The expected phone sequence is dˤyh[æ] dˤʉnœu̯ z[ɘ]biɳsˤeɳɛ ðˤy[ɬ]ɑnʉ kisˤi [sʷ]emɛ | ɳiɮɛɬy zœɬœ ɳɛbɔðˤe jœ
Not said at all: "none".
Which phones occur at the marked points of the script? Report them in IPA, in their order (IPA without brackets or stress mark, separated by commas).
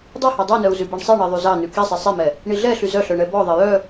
æ, ʉ, z, sˤ